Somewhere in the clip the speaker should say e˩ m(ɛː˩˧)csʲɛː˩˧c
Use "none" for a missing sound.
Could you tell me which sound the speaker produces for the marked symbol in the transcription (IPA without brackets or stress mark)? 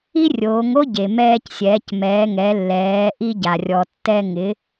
ɛː˧